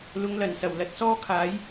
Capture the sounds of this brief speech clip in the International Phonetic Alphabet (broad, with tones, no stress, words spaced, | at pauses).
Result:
lʊ˨˧ŋlɐ˨˩nsɐ˨˩w lɐ˨˥t̚sɔː˥kʰaː˨˥j